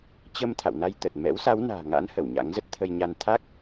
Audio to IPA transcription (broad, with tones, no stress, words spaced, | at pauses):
t͡ɕə˧m t̪ʰa̰˧˨wna˧jt̪ə˨˩t̚ mɛ̰˧˥wsa˨˦wna̤ː˨˩ŋa̰˧˥n hə˧˩wɲa̰˧˥ŋzə˦˥t̚ t̪ʰə˧jɲa˧n t̪ʰa˦˥k̚